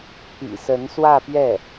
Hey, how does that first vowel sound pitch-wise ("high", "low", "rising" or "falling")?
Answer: low